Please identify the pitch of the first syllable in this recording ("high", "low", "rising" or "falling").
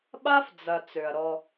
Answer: high